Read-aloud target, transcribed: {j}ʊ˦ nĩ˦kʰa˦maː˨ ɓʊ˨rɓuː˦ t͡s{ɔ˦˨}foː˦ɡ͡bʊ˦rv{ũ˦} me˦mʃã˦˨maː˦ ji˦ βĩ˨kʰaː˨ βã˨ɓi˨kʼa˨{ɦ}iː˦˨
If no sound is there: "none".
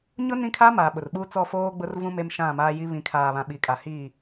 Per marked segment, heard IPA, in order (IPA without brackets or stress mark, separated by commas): ɲ, ɔ˦˨, ũ˦, h